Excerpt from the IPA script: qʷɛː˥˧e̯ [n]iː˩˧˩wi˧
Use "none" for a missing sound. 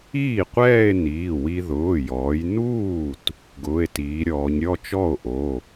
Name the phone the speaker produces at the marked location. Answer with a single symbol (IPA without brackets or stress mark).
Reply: n